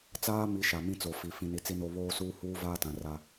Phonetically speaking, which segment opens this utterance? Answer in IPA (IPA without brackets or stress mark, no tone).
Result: t͡s